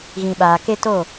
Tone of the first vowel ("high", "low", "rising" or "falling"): low